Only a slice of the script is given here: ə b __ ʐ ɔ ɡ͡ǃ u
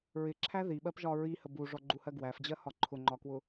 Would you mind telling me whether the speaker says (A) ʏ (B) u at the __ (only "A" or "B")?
B